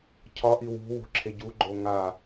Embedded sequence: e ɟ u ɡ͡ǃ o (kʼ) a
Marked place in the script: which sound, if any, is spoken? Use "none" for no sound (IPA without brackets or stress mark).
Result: ŋ